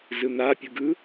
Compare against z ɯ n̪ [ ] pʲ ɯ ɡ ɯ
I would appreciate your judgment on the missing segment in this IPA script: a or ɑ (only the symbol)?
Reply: a